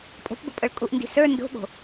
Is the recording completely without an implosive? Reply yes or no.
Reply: no